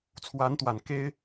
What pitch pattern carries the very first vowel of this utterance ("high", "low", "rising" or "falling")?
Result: rising